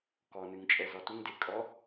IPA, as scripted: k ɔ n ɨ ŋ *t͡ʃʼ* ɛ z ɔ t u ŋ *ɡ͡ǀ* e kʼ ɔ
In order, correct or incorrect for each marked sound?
correct, incorrect: d

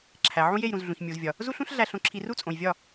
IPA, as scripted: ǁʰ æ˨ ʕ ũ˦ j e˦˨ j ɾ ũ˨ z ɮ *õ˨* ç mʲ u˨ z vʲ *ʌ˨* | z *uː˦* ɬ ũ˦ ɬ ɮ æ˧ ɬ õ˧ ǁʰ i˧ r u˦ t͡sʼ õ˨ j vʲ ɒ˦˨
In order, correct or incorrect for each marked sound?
incorrect: ũ˨, incorrect: ɒ˨, incorrect: u˦

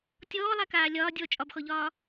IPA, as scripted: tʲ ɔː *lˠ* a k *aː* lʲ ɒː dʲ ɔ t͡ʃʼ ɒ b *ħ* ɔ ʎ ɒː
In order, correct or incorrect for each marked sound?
correct, correct, incorrect: x

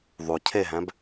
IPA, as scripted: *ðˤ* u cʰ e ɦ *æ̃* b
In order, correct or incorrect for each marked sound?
correct, correct

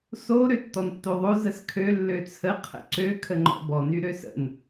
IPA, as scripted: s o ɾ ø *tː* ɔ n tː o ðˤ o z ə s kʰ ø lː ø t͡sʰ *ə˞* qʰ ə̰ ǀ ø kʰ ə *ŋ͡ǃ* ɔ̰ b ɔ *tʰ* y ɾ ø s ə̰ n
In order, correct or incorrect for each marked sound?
correct, incorrect: ə, correct, incorrect: n

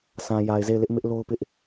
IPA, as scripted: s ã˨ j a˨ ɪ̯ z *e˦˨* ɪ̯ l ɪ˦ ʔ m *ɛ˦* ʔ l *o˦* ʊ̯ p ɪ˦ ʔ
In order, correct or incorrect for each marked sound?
correct, incorrect: ɪ˦, correct

